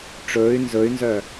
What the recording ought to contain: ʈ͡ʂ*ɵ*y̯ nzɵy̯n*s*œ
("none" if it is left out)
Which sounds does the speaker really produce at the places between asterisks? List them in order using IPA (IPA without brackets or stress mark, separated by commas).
ɵː, z